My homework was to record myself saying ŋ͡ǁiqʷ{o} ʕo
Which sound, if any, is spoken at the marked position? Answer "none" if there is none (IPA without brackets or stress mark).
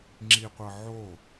ɤ